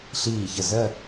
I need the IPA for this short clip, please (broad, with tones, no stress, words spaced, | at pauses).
ɬiː˧˩çə˧˩zɜ˥˧